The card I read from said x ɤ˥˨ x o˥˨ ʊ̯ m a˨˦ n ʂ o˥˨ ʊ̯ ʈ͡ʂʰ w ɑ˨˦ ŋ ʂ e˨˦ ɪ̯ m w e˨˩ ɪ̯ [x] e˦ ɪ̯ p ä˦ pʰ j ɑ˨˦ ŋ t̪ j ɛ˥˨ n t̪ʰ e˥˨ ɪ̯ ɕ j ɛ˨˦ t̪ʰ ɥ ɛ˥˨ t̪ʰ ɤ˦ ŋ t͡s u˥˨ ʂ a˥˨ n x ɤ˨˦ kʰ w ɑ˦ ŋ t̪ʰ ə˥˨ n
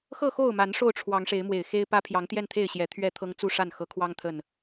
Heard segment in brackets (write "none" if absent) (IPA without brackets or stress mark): x